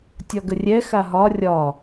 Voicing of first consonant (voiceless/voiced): voiceless